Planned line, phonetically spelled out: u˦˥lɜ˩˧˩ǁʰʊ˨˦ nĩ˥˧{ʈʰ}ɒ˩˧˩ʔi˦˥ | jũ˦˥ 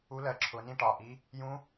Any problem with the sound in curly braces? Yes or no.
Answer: yes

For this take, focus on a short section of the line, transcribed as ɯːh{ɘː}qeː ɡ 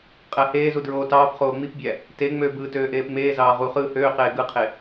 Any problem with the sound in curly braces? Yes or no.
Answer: yes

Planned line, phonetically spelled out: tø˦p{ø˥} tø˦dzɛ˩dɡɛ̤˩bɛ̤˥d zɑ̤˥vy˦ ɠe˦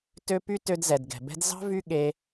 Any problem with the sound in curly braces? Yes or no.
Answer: yes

